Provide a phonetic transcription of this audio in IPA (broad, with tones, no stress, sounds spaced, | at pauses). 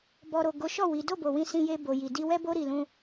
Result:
b ɔ˨ ɾ o˨ ɡ o˨˦ ʃ ɔ˦˨ w i˨˦ d o˦˨ b o˨ w ĩ˧ s ĩ˧ j e˧ b o˨ j i˨ d i˧ w ɛ˦ b o˦ ɾ i˧ l ũ˦